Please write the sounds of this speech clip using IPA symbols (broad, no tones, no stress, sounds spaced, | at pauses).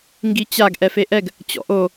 ŋ ɡ i t͡ɕ a ɡ ʔ ɛ f e ʔ ɛ ɡ | t͡ɕ ɔ̰ ʔ o